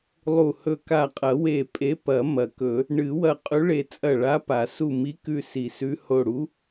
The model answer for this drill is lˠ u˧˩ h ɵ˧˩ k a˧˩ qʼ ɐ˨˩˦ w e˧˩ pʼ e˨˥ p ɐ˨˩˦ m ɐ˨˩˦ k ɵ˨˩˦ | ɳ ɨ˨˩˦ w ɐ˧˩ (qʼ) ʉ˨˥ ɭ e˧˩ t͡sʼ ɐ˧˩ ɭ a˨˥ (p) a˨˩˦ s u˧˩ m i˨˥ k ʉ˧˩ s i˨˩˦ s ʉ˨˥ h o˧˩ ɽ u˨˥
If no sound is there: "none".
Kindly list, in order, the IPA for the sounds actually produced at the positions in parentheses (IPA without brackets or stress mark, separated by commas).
qʼ, p